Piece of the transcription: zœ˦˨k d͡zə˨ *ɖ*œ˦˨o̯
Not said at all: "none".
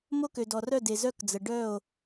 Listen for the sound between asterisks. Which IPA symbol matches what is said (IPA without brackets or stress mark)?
ɖ